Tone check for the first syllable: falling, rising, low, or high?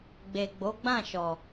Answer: low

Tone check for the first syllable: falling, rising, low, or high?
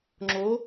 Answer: rising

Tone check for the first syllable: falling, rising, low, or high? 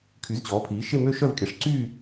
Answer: rising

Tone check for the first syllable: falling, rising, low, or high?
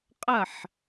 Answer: falling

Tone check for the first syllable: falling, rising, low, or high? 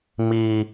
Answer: high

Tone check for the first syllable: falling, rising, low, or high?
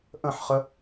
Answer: falling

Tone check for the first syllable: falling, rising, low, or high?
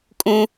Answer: high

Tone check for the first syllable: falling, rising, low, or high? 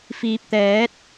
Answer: low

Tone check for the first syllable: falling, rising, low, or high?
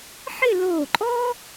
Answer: falling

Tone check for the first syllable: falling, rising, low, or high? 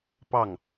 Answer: falling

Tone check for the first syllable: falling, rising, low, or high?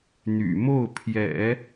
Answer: low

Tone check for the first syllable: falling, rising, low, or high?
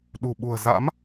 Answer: low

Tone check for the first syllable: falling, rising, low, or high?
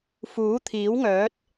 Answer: rising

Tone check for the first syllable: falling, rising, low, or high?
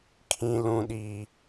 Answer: high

